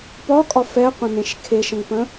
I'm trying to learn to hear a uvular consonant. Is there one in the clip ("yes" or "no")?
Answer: yes